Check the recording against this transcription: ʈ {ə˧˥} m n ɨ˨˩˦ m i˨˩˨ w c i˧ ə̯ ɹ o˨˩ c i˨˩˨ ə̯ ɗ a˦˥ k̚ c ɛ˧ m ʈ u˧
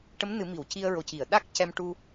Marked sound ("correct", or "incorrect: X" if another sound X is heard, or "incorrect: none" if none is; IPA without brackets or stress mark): correct